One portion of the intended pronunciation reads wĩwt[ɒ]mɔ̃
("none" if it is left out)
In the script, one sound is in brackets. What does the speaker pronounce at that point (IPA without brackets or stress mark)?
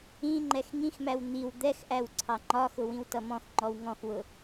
ʌ